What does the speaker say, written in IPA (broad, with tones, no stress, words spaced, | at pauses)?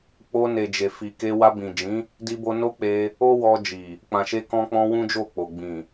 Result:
k͡po˧ne˨ d͡ʒe˨ fi˨ke˧ wa˧bĩ˨d͡ʒĩ˨˦ | di˧bo˧no˦k͡pe˧ | o˦wɔ˧ d͡ʒi˨ | k͡pã˨ʃe˧kɔ̃˧k͡pɔ̃˧ wũ˦d͡ʒo˦˨k͡po˨ ɡ͡bĩ˨